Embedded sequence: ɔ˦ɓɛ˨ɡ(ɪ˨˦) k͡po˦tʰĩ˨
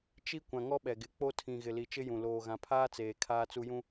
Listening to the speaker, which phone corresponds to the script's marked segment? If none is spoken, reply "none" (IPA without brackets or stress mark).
ɪ˨˦